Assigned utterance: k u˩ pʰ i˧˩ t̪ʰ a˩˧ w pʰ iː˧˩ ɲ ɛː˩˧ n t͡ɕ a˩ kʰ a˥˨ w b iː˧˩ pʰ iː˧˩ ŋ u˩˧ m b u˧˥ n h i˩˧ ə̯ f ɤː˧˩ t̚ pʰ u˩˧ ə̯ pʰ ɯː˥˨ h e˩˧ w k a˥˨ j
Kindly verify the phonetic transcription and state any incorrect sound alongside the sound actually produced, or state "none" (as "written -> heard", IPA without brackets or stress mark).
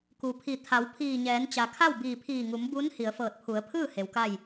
none